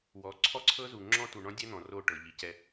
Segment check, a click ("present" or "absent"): present